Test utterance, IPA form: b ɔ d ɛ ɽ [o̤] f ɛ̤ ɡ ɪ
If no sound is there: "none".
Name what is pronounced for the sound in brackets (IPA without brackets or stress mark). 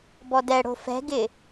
o̤